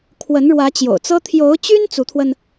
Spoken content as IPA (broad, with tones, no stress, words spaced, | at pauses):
kʰwə˧˥nɻwä˧˥t͡ɕjo̰˨˩ʊ̯t͡sɤ˥ t̪ʰjo˧˥ʊ̯t͡ɕy˥n t͡su˧˥t̪ʰwə˧n